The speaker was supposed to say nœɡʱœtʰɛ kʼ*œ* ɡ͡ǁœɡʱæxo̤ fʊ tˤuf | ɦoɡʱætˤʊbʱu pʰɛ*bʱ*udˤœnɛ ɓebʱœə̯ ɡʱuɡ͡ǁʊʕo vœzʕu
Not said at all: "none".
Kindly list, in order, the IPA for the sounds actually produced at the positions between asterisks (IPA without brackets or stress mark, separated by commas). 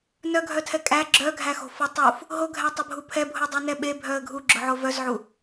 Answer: æ, bʱ